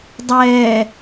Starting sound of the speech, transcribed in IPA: dˤ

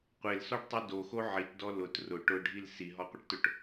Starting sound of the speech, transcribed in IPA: qʷ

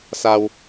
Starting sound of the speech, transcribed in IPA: s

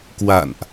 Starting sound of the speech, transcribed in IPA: k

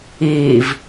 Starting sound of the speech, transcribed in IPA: iː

